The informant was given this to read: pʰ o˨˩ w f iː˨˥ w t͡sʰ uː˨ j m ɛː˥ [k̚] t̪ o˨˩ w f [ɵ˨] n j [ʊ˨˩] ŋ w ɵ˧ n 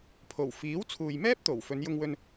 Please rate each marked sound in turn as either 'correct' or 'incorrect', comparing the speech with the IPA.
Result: incorrect: p̚, incorrect: ɵ˨˧, incorrect: ʊ˧

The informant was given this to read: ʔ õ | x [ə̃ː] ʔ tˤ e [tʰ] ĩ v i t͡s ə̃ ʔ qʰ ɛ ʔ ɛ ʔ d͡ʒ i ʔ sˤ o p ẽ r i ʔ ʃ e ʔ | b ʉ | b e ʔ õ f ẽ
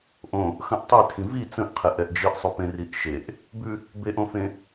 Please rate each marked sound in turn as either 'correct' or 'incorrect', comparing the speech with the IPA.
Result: incorrect: ə̃, correct

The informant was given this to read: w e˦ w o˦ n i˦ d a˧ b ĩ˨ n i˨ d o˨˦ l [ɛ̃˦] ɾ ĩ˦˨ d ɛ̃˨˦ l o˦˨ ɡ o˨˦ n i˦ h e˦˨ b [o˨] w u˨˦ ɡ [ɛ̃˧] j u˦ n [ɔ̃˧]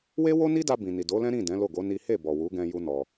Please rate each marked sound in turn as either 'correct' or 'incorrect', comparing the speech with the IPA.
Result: correct, incorrect: ɔ˨, correct, incorrect: ɔ˧

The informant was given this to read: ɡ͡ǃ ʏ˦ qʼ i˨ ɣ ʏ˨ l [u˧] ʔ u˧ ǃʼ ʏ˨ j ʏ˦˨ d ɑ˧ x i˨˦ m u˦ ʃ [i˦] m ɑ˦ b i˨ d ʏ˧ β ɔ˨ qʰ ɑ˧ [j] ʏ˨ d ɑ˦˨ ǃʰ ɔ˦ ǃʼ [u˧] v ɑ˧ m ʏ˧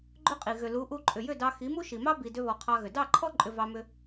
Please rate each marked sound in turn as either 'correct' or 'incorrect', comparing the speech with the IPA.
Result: incorrect: u˨˦, incorrect: i˨, incorrect: ɣ, incorrect: ʏ˧

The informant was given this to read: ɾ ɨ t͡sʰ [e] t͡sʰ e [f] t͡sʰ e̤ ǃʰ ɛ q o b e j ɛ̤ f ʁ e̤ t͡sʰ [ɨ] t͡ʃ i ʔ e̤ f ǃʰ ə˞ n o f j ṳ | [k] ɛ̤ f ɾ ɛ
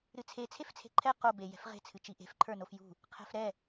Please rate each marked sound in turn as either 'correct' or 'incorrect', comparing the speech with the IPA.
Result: correct, correct, correct, incorrect: qʰ

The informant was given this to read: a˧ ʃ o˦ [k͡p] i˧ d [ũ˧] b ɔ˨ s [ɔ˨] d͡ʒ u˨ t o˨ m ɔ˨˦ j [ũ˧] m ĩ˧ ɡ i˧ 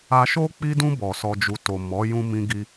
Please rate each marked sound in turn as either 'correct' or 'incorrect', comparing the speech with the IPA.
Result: correct, correct, correct, correct

